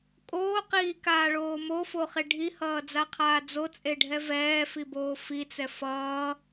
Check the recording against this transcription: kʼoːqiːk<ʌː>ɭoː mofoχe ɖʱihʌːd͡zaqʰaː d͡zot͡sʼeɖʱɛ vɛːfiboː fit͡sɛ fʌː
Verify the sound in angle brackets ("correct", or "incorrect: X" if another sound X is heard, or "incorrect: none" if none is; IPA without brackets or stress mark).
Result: incorrect: aː